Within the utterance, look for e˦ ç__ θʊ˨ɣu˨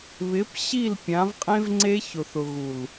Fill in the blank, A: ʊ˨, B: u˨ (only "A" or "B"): A